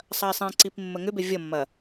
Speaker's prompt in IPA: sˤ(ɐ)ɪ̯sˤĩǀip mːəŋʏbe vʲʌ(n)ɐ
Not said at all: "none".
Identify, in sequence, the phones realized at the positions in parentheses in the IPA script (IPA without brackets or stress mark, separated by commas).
ɐ, mː